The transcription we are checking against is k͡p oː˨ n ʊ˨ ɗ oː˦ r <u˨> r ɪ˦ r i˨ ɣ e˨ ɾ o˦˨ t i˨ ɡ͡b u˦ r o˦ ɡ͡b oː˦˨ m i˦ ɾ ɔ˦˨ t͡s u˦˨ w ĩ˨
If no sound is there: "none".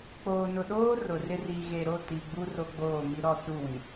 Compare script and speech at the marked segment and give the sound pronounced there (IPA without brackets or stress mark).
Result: ʊ˨